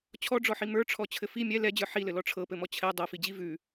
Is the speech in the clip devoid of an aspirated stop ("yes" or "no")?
no